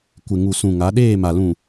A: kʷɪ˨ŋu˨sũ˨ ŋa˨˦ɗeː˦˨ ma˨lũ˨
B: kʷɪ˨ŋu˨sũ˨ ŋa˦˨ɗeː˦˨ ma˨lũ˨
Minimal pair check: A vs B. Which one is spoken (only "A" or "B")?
A